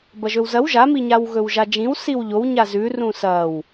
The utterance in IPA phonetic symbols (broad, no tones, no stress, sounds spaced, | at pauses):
b ɐ ʒ ɵ w z ɐ w ʒ a m i ɲ a w ɣ ɵ w ʒ a d͡ʒ ĩ w s i w ʎ o w ɲ a z ʉ r ũ s ɐ w